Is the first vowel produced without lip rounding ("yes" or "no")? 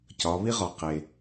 no